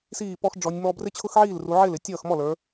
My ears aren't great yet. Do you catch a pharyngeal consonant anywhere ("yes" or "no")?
yes